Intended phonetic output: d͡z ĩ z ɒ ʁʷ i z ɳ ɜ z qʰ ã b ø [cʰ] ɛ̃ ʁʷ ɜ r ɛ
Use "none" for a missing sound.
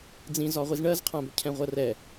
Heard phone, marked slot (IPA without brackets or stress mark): cʰ